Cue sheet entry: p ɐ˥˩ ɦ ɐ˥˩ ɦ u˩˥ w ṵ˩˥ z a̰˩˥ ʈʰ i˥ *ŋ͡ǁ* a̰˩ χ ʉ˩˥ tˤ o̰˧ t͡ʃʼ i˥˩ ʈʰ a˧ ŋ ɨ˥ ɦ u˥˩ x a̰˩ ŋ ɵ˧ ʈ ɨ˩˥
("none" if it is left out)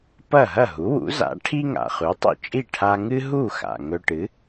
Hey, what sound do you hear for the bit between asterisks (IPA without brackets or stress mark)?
ŋ